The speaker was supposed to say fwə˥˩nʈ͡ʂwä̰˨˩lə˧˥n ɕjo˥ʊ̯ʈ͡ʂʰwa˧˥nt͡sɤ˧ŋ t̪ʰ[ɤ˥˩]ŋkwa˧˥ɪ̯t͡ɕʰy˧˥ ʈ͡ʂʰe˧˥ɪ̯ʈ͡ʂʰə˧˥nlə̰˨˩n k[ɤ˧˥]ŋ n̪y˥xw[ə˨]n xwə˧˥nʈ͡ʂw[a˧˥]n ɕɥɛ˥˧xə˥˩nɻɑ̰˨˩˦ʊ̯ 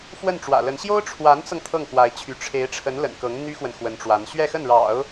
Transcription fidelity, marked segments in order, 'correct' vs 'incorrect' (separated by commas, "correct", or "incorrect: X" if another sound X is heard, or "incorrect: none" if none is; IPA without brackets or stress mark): correct, correct, correct, correct